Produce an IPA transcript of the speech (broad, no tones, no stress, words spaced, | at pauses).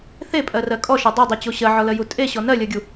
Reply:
θepʼɜrɜ kʼɔʃɜ dˤydˤyt͡ɕo ɕɜʕɔlɜju tʼeɕɔ nɜlʲɜɡʲu